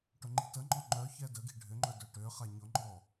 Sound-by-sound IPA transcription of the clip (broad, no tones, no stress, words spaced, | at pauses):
ʈʊŋ͡ǃi̤təŋ͡ǃɔ ŋ͡ǃœ çɛdəɡi̤ ɖʱʏŋ͡ǃœ dœʈøχa ɲʊŋ͡ǃɔ